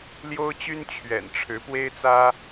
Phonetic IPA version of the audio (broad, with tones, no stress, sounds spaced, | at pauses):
l j o˥ ʊ̯ t͡ɕ y˥ n t͡ɕʰ ɥ ɛ̰˨˩ n ʈ͡ʂʰ ɻ̩˧˥ p w e˥ ɪ̯ t͡s ä˥